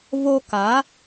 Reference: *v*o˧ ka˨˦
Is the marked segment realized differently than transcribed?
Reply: no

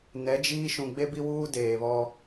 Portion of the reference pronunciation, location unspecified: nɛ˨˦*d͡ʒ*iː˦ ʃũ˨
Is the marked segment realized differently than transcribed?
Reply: no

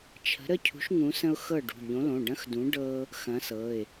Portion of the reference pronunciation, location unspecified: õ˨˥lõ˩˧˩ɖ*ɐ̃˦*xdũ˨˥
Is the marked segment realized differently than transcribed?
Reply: no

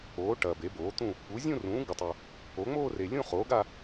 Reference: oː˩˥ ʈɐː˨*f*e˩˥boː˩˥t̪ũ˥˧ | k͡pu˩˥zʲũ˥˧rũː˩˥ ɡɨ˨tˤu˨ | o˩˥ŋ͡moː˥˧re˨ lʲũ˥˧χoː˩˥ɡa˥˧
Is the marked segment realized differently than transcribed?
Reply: yes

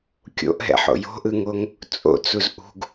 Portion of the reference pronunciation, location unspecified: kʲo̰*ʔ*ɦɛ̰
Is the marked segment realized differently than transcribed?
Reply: no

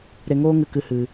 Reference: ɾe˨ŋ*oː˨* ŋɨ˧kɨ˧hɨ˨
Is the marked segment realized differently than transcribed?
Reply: yes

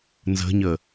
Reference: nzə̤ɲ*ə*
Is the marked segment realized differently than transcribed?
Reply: no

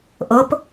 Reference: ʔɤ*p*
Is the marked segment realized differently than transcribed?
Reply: no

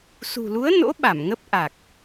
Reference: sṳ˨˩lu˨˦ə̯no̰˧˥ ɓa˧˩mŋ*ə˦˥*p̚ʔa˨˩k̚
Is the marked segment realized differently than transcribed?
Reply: no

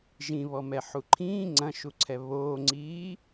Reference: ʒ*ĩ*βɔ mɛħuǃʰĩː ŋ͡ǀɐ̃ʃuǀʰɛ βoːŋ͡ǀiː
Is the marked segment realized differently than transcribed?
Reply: no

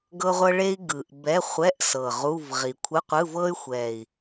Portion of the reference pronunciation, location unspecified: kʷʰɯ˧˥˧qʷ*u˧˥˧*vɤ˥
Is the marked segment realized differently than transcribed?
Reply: yes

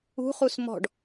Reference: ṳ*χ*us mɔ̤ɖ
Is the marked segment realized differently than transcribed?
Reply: no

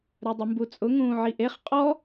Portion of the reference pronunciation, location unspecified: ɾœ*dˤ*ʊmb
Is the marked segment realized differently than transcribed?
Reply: no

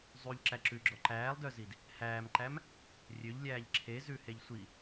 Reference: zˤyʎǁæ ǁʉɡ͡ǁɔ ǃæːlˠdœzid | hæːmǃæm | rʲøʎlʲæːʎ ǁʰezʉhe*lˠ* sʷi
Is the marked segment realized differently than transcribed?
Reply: yes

